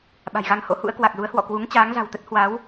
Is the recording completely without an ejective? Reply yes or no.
yes